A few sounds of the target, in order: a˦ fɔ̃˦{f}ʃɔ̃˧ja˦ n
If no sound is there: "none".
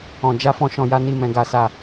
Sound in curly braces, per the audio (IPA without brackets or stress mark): none